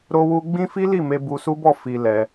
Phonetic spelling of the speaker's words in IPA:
ɾ o˧ w u˧ ɡ͡b ĩ˦ f i˦ l i˦˨ m e˧ b u˧ s u˦ b ɔ˦˨ f i˧ l ɛ˧

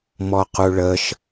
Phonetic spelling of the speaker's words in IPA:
m ɔ q u ɭ ə ʃ

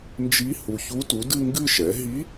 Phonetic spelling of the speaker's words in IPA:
n d͡ʒ i˧˥ h u˨ ç u˧˥ t u˩˥ d ɨ˥˧ ŋ ɡ ɨ˥˧ ʃ ɛ˩˥ ɦ i˧˥

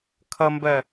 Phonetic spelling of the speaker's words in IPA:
kʰ ʌ m b ɜ

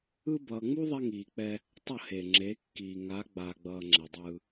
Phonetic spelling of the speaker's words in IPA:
ɯ˦ b ʌː˦ ŋ͡m u˦ ðˤ ɛ˦ ŋ iː˨ k͡p ɛ˦ | tˤ ʌ˦˨ h eː˨ ŋ͡ǁ e˨˦ kː iː˨ ŋ a˨˦ ɡ͡b a˨ ɡ͡b ʌː˨ ŋ͡ǁ ɛ˨ dˤ ɯː˦

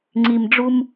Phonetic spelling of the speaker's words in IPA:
ŋ͡ǀ i˨ m ɖ͡ʐ u˦ m

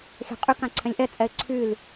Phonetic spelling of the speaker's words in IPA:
xʲ a̤ qʼ y k ã ǀʰ ɛ̃ lʲ ʔ ɛ t͡sʼ ɛ ɪ̯ ǀʰ y l

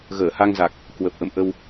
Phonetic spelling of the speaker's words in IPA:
ɣ əː˧˩ h a˧ ŋ z a˨˩ k̚ | k w ə˨˩ p̚ ʔ ə̰˧˨ m ʔ ə˧ w

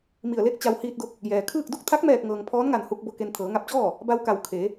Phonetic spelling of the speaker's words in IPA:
m i˧˩ ə̯ l e˥˨ k̚ t͡ɕ a˧ w h iː˧ t̚ d o˧˥ k̚ | j ɛː˩ kʰ ɯː˥˨ k̚ d u˥˨ k̚ t̪ʰ a˧˥ k̚ m ɛː˧˩ k̚ ŋ ɤː˩ ŋ pʰ ɔː˧˥ n ŋ a˧˩ n h u˧ k̚ b o˧ k e˧ n t̪ʰ ɤː˩˧ ŋ a˧ p̚ t͡ɕ ɔː˥˨ | b a˧ w k a˧˩ w kʰ e˩˧

